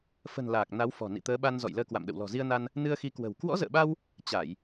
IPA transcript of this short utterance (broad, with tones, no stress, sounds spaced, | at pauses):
f ə̤˨˩ n l aː˨˩ k̚ n a˨˦ w f ɔ̤˨˩ n ḭ˧˨ t̪ əː˨˦ ɓ a˧ n z ɔ̰˧˨ j l əː˧ k w a̰˧˨ m ɗ ə̰˧˨ w l ɔ̤˨˩ z i˧ ə̯ n a˧ n | n ɨ˧ ə̯ x i˨˦ k w ə̤˨˩ w k w ɔ̰˧˥ z ə̰ː˧˨ ɓ a˧ w | t͡ɕ a˧˩˨ j